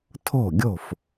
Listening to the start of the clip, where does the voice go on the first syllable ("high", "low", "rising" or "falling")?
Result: falling